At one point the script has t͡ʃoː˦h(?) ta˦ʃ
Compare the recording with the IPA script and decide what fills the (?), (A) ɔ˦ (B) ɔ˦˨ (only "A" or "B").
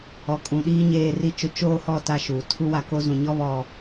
B